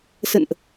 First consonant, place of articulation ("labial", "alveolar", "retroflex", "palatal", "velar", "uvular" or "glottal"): alveolar